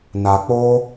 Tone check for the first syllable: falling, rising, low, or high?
low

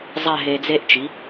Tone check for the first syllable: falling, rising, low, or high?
falling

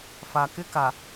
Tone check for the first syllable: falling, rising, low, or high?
low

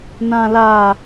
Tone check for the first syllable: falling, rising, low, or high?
low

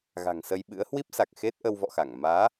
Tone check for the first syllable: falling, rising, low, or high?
low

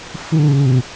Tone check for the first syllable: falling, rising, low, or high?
low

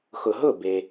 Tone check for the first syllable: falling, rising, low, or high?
low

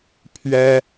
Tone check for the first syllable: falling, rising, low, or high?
high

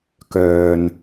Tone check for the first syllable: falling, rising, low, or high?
low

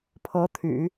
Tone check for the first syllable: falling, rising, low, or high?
rising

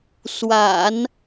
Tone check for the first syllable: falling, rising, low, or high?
low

